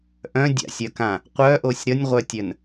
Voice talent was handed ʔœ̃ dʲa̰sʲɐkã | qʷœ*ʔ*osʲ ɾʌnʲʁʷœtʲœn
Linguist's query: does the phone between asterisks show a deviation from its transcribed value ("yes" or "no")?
no